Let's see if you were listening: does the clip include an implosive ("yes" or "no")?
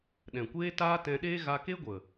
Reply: yes